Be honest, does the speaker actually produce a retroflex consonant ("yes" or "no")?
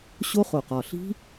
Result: no